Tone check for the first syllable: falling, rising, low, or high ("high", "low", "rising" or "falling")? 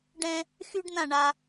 high